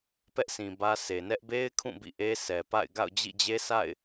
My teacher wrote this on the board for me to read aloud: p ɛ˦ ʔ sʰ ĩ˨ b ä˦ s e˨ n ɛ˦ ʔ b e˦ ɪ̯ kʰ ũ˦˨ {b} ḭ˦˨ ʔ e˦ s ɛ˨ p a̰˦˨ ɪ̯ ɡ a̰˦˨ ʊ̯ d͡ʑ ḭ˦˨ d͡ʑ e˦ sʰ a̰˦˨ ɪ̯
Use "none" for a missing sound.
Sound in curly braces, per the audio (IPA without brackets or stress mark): b